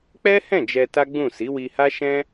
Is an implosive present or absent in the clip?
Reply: absent